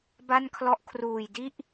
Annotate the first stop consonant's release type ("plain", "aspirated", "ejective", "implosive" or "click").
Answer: plain